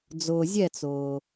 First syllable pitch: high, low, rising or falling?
low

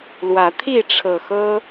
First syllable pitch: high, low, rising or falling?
rising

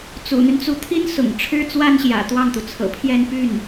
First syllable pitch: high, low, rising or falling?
low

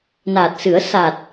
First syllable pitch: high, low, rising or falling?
low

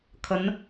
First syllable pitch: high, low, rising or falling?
rising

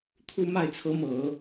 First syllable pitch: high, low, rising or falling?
falling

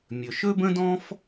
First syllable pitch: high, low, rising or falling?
low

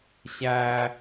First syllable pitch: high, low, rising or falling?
high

